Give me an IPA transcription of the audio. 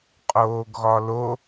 qʼoːɡɣɒlo

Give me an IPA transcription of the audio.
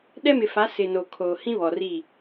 ɗɛ˦mɪ˨fa˨˦ sɪ˨no˨ kʰoː˨hĩ˦βɔ˨ ri˦˨

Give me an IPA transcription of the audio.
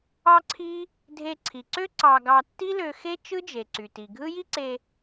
ɑ˥ǀʰi˥ | dʱe˧ǀʰi˩ǀø˥ ǀɑ˧ɡɑ˧tːi˥lø˧ xe˥ t͡ʃɯ˥d͡ʒe˩ǀy˩ ti˩ɡʱɯ˥ ji˥ǀe˧

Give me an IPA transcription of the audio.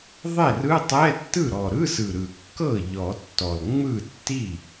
ðˤe˥˩rɯ˧˥˧tˤɛ˧˥˧ tːɯ˥˩ɾɔ˨˩ɾɯ˧˥˧sɯ˨˩ ɾɯ˨˩kːɤ˥˩ ʎɔ˨˩˦tːɔ˨˩l ŋ͡mɯ˥˩tːi˥˩

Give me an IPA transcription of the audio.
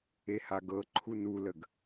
ehaɡɤ ǃʰunuləɡ

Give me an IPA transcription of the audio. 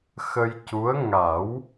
xə˧jcu˧˥ə̯ ŋa˨˩˦w

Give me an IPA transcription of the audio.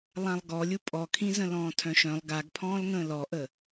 lˠãlˠɡɔlʲu pʼɔkʰĩzə̃lɔ̃ː tʰœ̃ʃœ̃lˠ ɡaɡ pʰɔ̃ːlŋə̃ːlɔʔə

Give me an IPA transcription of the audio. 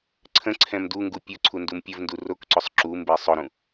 ǀʰə̃ ǀʰɛ̃mduŋɡu pʲʊ ǀʰundumpʲəvndu rokǀʊsˤ ǁumbe sˤʊɾũ

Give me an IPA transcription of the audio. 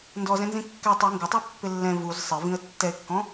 ndɔzɛ̃nzĩ kːɛ tˤi ŋɡɪtˤu pːɪlːɛ̃ vuz sˤɪvĩə̯ tːɛɪ̯kːɔ̃

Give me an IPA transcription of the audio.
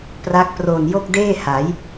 pra˦˥k̚pro˨˩n jo˥˩k̚deː˥˩ha˩˦j

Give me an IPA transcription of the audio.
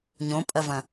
ɲõpʼɐvɐ̃

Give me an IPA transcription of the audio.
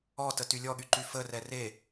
ɔ tətylʲɔɠy ǃyfərɛ re

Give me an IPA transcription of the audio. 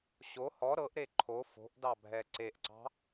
ɕo hɔ ɾɤʔɾe ǃʰo fo̤ʔdɑbʱɛ ǀeʔǀɑ̤

